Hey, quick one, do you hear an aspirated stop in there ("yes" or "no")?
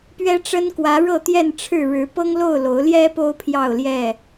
yes